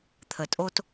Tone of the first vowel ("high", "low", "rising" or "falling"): low